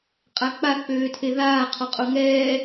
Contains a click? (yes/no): no